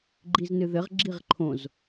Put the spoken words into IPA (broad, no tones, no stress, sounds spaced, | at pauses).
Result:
ɡ͡ǃ i z n ɨ ð ɘ ʁ ɡ͡ǁ i ʁ ǃʰ õ z